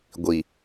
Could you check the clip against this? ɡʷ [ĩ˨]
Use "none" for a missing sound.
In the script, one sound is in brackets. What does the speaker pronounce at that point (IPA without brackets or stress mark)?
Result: i˨